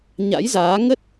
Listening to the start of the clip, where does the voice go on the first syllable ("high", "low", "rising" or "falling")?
rising